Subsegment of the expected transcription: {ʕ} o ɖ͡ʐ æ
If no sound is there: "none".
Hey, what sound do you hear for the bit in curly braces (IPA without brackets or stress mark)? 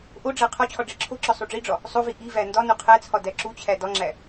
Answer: ʔ